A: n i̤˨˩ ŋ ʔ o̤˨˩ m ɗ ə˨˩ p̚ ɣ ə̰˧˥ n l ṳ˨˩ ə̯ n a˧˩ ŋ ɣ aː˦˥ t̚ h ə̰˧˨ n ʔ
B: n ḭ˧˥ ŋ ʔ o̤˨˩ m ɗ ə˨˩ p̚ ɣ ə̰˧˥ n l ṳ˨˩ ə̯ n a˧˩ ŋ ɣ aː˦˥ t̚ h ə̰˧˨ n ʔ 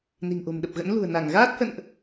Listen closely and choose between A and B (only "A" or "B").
A